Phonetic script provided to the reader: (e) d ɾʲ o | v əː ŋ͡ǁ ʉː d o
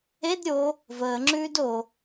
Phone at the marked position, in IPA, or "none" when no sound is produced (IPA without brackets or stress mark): e